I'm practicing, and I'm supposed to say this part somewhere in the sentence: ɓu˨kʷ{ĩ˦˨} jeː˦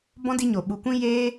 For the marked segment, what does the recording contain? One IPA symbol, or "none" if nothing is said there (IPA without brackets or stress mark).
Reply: ĩ˦